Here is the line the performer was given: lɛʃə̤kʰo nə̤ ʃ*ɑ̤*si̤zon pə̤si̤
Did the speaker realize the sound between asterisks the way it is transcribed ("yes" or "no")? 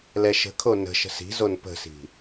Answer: no